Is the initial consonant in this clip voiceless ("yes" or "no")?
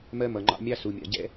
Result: no